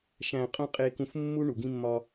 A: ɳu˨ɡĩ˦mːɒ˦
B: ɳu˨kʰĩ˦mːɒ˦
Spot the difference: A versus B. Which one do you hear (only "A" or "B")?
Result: A